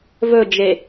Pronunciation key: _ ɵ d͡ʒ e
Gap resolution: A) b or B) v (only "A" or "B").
B